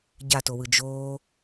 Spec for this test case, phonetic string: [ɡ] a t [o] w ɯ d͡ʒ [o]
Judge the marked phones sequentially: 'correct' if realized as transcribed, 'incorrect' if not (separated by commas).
incorrect, correct, incorrect